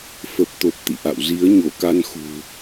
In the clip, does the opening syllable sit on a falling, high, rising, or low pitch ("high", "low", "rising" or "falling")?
low